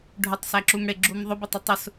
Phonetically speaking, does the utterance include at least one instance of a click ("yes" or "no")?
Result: yes